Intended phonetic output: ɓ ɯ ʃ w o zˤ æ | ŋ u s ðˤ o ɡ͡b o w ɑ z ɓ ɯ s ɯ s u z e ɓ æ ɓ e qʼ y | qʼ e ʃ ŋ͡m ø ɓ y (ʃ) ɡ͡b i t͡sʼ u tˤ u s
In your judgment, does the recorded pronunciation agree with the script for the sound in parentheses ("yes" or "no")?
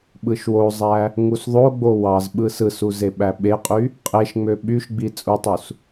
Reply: yes